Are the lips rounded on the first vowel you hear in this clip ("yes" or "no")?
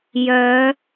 yes